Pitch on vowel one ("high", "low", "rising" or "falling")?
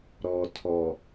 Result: low